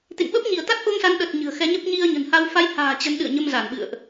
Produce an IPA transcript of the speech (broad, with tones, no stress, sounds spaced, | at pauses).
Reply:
t̪ ḛ˧˨ ŋ ɓ ə˦˥ p̚ ɲ i˧˩ ə̯ t̪ a˦˥ t̚ ʔ o˧ ŋ s a˨˦ n ɗ ə˨˩ t̚ ɲ ɨ̤˨˩ ə̯ x ɛ˨˦ ɲ ə˦˥ p̚ ɲ i˧ ə̯ ɲ ə̤˨˩ n h a˧ w f a˨˦ j h a̤ː˨˩ t͡ɕ ə˨˦ n ɗ ɨ̰˧˨ ə̯ ɲ ə˧ m z a˧˩ n ɓ ɨ̰˧˨ ə̯ ʔ